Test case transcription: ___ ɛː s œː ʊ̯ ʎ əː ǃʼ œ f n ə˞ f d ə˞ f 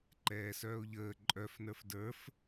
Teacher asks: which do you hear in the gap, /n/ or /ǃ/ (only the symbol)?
ǃ